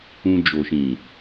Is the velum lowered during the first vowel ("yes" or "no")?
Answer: yes